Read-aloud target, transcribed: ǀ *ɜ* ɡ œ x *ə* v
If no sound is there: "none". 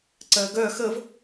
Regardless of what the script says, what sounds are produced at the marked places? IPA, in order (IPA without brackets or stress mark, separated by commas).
ɜ, ə